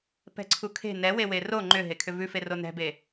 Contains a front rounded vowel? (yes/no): yes